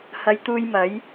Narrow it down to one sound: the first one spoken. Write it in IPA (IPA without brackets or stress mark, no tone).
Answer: h